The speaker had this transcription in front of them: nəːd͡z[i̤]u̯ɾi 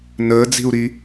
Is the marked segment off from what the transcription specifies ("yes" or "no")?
no